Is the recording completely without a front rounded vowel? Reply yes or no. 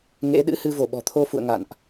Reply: yes